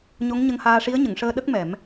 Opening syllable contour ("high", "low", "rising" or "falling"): rising